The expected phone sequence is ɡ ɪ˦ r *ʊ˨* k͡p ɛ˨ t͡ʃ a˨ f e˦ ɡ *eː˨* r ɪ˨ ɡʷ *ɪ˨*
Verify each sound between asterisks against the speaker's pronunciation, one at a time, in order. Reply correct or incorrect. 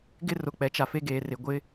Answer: correct, correct, incorrect

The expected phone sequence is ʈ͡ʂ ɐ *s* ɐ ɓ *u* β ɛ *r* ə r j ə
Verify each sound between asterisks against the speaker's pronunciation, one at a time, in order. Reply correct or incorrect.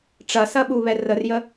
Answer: correct, correct, correct

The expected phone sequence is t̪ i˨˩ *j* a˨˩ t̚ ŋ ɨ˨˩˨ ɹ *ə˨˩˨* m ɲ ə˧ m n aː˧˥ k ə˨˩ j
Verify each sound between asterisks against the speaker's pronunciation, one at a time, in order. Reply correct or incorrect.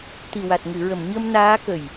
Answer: incorrect, correct

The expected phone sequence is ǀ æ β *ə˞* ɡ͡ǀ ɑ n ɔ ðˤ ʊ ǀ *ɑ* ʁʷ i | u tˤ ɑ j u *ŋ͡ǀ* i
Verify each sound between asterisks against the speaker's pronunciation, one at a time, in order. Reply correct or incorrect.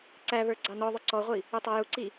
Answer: correct, incorrect, incorrect

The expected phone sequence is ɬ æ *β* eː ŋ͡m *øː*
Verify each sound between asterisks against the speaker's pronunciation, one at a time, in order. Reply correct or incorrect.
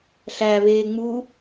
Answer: correct, incorrect

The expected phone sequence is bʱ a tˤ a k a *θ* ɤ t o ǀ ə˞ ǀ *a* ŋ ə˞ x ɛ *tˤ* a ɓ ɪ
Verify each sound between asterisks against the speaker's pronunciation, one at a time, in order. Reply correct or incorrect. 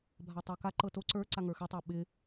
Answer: incorrect, correct, correct

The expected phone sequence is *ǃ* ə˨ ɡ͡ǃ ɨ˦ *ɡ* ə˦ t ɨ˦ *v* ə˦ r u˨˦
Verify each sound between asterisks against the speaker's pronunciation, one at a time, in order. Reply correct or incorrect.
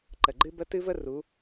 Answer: correct, incorrect, correct

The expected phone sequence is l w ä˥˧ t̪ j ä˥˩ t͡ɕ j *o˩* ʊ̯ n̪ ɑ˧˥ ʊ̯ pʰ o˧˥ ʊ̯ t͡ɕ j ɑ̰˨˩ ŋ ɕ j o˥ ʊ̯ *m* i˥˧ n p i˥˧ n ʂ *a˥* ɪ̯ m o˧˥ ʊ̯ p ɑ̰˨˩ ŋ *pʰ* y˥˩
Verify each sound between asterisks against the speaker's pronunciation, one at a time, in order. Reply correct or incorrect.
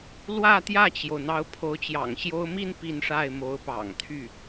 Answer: correct, correct, incorrect, incorrect

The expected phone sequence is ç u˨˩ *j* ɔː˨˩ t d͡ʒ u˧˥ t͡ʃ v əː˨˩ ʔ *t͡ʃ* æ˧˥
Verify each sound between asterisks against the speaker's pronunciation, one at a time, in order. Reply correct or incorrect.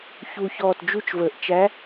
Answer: incorrect, correct

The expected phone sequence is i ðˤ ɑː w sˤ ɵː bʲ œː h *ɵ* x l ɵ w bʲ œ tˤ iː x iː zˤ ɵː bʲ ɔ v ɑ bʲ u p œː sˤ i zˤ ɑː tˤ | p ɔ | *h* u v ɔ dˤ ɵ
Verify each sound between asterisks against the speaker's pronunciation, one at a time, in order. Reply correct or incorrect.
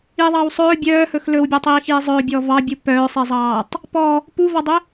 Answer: correct, incorrect

